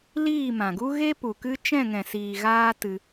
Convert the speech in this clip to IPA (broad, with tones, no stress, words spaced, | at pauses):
liː˦˨mã˨ɡu˦ ɣe˦pu˨kɨ˦ t͡ʃɛ̃˦˨ŋɛ̃˨siː˨ ɣaː˦tɨ˧